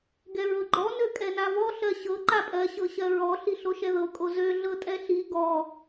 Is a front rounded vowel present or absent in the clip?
present